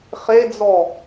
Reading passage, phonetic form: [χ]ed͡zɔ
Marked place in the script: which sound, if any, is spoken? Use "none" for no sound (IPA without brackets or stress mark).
χ